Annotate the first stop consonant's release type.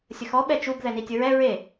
implosive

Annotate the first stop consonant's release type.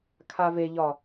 aspirated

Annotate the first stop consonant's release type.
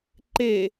click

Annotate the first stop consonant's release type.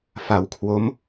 aspirated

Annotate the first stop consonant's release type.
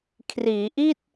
aspirated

